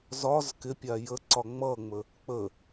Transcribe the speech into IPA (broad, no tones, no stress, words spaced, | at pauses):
zɒz kɪpʲa jəǀɒ ŋ͡mʌŋ͡mə | k͡pə